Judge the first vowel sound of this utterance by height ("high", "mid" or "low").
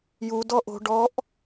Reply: high